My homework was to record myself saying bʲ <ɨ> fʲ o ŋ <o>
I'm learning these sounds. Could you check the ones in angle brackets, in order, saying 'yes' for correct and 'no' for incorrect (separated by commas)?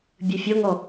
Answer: yes, no